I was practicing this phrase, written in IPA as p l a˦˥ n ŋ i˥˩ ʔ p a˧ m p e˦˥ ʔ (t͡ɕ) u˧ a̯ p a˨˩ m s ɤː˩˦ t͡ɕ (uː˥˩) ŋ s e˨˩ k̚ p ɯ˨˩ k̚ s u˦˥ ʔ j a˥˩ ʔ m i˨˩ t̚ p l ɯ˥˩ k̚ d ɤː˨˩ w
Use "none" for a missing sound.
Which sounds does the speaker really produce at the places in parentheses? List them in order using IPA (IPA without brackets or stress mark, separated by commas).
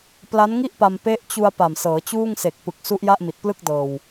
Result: t͡ɕ, uː˥˩